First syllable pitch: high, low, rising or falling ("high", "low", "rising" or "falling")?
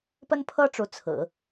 high